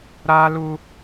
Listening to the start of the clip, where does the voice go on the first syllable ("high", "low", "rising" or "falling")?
high